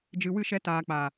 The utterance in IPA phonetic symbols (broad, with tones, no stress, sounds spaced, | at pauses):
d͡ʒ ɨ˨ w ɨ˦˨ ʃ ɛ˧ t aː˨ k͡p a˨